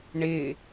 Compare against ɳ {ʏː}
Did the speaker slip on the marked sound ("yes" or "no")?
yes